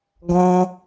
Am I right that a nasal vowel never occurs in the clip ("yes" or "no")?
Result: no